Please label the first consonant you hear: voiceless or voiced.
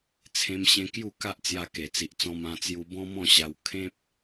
voiceless